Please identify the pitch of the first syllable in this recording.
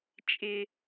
low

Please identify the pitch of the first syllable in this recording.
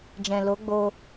low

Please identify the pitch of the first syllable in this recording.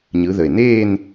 rising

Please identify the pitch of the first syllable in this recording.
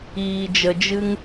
low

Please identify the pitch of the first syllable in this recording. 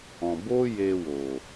low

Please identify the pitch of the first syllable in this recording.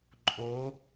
rising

